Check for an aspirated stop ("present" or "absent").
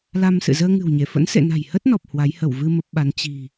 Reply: absent